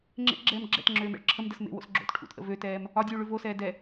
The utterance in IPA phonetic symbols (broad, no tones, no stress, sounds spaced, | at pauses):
ŋ͡ǁ ḛ ʔ ɡ͡ǁ ɛː m ɡ͡ǁ ɛ̰ t ŋ͡ǁ øː m ɛ̰ ɭ ǁʰ ə m d ə s m ḛ w o̰ s ɡ͡ǁ o̰ t ʈʰ ṵ t ʔ ə̰ v ø t ɛː m | ɒ dʲ ʉː ɭ ʉ v o s ɛː d ɛ